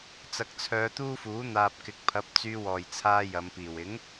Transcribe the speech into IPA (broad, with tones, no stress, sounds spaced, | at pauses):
t͡s ɐ˨˥ k̚ t͡sʰ œː˨˧ t̪ uː˥ f uː˨˥ n̪ aː˧ p̚ k ɪ˨˥ k̚ pʰ ɐ˨˥ p̚ t͡s yː˧ w ɔː˨˩ j t͡sʰ aː˧ j ɐ˨˧ m p iː˨˩ w ɪ˨˥ ŋ